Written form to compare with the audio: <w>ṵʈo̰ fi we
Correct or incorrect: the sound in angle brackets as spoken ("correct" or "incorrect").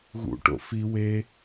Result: incorrect